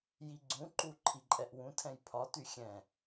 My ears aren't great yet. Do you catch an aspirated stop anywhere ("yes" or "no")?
yes